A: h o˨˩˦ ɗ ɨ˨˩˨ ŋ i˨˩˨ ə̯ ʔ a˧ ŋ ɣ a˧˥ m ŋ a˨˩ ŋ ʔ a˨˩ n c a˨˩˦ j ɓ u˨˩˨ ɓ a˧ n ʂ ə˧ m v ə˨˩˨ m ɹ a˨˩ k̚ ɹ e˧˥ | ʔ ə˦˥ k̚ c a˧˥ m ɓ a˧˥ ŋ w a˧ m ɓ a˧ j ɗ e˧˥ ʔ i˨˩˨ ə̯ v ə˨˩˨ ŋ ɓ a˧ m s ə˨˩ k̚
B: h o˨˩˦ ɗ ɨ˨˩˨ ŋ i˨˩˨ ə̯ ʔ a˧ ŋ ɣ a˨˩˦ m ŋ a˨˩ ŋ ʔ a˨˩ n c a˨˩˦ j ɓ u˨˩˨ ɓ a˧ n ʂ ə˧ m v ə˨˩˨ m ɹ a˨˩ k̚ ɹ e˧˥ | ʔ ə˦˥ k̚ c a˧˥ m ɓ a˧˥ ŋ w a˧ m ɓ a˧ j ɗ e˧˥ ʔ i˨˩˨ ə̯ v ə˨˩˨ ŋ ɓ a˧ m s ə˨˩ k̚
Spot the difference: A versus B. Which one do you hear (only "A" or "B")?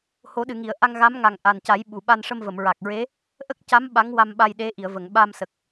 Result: A